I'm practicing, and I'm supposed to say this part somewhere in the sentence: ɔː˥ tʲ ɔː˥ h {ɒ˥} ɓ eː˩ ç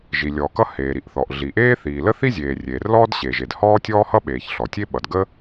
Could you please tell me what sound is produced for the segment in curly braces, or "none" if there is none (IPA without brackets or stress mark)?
ʌ˥